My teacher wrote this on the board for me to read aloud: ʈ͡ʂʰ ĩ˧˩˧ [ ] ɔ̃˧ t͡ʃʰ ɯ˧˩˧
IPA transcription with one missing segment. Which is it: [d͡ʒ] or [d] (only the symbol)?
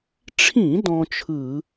d